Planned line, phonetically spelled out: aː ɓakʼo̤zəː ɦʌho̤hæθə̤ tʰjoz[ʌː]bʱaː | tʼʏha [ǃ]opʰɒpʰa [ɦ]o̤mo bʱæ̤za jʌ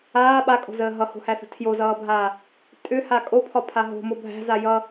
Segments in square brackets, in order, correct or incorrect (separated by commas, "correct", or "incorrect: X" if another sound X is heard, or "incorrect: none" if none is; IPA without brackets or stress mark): correct, incorrect: kʼ, correct